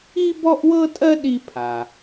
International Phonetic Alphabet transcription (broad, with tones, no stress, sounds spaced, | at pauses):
i˥ b ɔ˥ ʔ w ɤ˥ tʼ ɜ˥ ɗ i˥ pʰ a˩